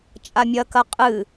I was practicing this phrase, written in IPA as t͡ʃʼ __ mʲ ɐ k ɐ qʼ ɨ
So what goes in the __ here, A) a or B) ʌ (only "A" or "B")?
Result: A